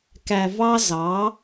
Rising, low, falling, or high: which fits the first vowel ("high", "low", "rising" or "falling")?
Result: low